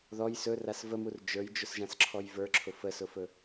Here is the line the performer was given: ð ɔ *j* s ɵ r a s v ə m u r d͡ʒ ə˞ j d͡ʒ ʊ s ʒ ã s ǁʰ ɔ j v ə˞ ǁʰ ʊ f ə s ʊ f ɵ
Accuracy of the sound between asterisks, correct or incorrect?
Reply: correct